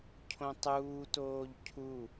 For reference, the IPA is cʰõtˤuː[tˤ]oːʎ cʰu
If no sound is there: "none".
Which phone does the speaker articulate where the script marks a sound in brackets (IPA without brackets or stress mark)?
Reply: t